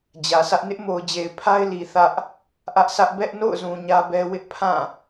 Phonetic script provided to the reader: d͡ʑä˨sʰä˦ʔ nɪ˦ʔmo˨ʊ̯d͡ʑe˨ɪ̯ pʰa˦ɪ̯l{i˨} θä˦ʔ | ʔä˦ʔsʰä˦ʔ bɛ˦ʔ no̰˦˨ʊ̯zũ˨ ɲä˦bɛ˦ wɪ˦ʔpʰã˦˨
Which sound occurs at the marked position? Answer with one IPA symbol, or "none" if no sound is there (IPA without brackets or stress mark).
i˨